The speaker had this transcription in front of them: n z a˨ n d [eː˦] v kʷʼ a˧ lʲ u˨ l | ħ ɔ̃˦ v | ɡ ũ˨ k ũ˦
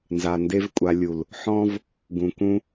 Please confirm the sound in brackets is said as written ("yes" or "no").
no